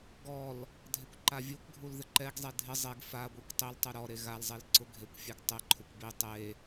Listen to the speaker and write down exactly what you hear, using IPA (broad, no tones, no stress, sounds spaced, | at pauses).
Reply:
ɡ ɔ l | dʱ e kʷ ǃ a vʲ u kʷ ɡʱ u l ð ɪ ǃ ɛ ɡ zˤ e dʱ ɪ zˤ e ɡ f a ɡʷ i kʷ tˤ i l tˤ u ɾ ɔ ɾ e ɣ a l zˤ e l ǀ ʊ ɡʱ e kʷ fʲ ɛ ɡ tˤ ɪ ǃʰ ʊ kʷ b i tˤ e